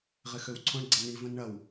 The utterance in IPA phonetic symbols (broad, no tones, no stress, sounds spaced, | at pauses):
ʁ ɪ x ø w ǀʰ õ ɳ ɡ͡ǀ ɐ n i v ə̃ n ɳ ɐ w